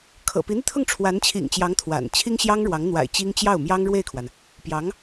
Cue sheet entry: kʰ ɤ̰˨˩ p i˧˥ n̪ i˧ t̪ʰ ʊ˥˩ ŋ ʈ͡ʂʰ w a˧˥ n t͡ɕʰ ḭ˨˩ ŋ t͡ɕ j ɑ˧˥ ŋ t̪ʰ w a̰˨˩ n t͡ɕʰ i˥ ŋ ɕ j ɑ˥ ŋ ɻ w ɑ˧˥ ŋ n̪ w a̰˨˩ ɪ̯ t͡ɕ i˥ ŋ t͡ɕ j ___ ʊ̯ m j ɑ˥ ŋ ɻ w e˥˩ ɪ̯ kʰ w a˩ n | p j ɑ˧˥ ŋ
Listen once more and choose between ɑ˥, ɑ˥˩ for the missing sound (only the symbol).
ɑ˥˩